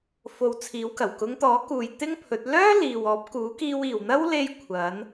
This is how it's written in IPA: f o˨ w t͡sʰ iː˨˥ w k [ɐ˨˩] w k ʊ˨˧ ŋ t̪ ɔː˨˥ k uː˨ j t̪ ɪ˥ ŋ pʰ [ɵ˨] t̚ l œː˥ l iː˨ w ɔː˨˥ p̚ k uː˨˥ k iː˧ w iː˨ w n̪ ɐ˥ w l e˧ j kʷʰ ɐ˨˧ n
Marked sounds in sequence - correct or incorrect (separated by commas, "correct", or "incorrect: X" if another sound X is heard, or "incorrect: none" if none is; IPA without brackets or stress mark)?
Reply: correct, incorrect: ɵ˨˥